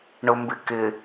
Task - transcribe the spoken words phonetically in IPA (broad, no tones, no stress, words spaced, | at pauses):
ɳʊmbɪkɪ